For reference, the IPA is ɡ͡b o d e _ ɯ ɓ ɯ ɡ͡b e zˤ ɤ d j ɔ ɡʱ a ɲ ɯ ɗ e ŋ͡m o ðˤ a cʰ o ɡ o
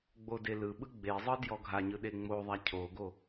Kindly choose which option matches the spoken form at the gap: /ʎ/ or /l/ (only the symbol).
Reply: l